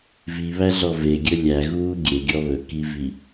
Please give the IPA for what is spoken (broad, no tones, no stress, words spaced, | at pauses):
viβæɮɔ veɡʲɵ lʲæɣuː ɡʲeɡʲɔ βɵkivi